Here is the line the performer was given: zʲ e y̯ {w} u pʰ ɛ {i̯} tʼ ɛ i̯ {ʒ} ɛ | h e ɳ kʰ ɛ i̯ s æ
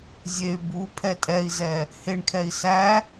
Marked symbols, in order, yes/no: no, no, no

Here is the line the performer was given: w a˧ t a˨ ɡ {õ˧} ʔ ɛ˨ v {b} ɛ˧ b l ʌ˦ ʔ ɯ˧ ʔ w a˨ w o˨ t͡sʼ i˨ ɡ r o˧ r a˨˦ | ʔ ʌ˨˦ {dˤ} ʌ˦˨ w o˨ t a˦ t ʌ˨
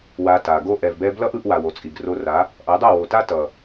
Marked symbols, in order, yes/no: no, yes, yes

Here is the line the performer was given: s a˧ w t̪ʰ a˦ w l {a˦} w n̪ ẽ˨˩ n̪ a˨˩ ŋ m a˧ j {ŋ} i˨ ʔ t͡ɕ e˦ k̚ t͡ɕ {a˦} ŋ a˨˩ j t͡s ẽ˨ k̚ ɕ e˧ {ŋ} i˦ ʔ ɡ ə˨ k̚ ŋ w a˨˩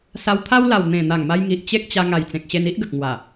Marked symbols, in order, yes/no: no, yes, no, no

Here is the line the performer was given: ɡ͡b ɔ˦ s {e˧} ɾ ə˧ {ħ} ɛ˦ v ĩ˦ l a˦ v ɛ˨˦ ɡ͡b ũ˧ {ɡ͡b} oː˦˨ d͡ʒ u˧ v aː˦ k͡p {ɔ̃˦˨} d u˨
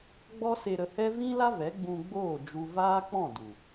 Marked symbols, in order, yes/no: yes, no, yes, yes

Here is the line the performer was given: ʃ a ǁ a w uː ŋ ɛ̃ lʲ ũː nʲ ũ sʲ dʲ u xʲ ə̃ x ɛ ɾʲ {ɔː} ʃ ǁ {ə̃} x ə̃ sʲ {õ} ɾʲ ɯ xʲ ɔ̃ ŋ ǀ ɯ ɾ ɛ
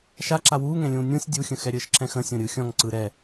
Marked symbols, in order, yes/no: no, no, yes

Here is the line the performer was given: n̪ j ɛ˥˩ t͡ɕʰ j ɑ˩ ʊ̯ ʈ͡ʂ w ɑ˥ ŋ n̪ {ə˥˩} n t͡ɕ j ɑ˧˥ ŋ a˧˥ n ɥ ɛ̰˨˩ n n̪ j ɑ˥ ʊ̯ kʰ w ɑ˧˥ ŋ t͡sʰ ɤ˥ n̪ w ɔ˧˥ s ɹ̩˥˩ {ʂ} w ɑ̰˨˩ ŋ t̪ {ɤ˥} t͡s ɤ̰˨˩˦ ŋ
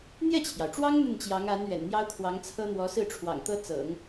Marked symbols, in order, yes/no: yes, no, yes

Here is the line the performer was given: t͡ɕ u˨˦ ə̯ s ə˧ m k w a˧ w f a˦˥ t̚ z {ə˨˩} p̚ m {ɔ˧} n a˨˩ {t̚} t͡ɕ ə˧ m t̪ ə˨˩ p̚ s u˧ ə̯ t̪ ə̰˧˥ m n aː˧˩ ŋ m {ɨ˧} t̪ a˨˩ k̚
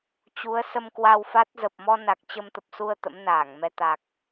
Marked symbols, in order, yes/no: yes, yes, no, no

